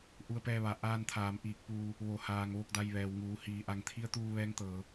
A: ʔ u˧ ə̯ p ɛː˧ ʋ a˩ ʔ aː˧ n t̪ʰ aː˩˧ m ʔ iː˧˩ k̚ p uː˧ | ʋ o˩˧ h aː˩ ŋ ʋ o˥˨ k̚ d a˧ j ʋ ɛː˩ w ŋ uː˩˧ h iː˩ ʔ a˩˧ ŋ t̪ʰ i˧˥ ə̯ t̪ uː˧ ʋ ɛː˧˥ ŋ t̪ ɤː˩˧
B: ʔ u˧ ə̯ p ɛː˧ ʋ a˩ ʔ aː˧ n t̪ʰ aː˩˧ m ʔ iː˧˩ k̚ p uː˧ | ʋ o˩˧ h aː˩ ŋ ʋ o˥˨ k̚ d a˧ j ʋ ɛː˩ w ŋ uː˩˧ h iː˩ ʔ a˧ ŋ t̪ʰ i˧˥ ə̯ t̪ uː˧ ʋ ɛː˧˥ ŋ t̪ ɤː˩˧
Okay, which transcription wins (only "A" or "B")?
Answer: A